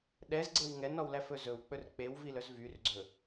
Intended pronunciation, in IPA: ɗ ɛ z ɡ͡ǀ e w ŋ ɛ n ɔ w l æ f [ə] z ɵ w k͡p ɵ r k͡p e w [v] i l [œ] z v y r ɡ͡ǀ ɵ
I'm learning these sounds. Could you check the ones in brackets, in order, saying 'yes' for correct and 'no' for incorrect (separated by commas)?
no, yes, yes